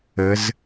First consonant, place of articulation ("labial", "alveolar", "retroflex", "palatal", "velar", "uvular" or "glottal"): alveolar